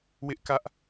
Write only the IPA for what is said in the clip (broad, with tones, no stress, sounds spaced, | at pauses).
w ɪ˦ ʔ k ä˦ ʔ